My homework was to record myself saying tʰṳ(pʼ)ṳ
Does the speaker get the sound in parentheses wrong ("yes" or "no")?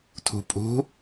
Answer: no